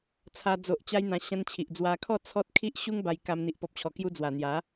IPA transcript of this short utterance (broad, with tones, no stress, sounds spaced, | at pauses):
t͡sʰ a˧ d͡z o˨ ʔ t͡ɕ a˧ j n̪ ã˧ ɕ ã˧ n t͡ɕʰ i˨ ʔ d͡z w a˧ kʰ ɔ˥˧ t͡sʰ ɔ˦ t̚ kʰ i˦ ʔ ɕ u˦ ŋ b a˧ j k a˧ m n̪ i˨ ʔ p ɔ˨ p̚ t͡ɕʰ ɔ˨˩ k j u˧ d͡z w a˨˩ n̪ j a˨˦